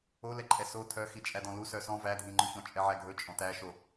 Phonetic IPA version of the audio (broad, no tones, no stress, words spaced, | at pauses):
olɛǃʼɛ so tʰœxi t͡ʃʼædɔ̃lu sœsɔ̃ vædʱĩŋ͡ǃɵçɔ̃ t͡ʃʼɛʕæɡʱɵt͡ʃʼɔ̃ tæʃo